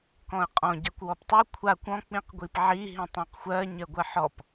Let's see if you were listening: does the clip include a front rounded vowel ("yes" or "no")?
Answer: no